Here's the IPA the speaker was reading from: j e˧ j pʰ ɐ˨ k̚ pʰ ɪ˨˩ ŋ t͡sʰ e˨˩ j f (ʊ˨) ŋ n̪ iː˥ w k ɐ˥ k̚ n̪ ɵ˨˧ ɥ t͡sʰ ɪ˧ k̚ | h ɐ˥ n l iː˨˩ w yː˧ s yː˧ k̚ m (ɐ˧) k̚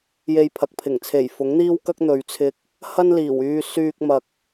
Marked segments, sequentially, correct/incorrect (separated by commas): incorrect, incorrect